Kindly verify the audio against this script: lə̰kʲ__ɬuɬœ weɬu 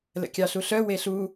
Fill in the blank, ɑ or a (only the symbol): ɑ